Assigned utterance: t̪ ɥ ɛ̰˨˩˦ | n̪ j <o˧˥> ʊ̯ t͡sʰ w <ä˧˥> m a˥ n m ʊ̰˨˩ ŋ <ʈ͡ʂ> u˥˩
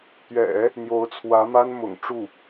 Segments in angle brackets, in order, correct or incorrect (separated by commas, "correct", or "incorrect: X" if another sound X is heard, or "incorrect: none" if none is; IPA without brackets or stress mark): correct, correct, correct